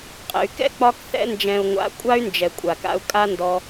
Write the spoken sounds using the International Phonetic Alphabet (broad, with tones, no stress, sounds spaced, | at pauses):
qʼ ɛ̰˨ y̯ k ɛ̰˦ k͡p ɒ˧ k θ ɛ̰˧ n d͡ʒ ɛ̃˨ u̯ ŋʷ a̰˨˦ kʷʼ a˦ y̯ n d͡ʒ ɛ˨ kʷʼ a˨ k a̰˧ u̯ kʼ a˦ n d ɔ˧